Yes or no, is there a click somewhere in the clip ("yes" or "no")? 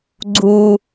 yes